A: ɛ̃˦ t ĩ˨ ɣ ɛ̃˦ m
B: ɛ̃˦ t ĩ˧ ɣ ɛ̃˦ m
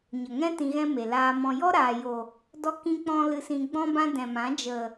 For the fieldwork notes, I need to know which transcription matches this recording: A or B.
B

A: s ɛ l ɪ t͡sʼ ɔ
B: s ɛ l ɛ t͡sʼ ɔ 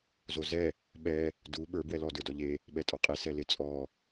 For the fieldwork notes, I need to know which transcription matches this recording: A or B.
A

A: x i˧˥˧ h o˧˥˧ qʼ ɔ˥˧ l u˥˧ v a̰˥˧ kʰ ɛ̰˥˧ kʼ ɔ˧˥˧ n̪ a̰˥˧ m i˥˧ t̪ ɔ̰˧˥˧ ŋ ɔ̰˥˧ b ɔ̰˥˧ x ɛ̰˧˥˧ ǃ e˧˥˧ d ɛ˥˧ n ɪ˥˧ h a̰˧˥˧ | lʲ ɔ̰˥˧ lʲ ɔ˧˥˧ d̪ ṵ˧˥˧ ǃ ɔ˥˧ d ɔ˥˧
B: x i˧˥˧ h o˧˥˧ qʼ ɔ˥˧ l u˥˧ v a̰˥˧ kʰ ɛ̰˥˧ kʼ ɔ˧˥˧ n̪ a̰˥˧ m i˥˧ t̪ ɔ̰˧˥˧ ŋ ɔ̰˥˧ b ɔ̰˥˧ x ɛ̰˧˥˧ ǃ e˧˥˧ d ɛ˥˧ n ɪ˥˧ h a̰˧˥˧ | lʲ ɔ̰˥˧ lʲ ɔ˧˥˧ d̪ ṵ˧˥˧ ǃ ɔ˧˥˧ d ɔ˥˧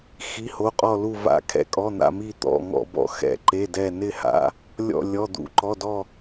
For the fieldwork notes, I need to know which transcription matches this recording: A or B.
B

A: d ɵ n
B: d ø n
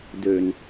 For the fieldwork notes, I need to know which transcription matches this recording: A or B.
B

